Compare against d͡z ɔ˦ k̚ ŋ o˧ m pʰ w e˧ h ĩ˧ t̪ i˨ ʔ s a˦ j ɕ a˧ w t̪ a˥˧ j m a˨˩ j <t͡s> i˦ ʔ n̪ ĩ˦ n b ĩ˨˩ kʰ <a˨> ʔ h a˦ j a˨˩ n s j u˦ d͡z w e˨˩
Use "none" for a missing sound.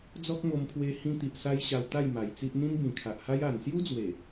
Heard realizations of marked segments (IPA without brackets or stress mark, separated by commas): t͡s, a˨